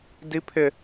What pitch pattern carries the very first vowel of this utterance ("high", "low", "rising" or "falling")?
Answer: high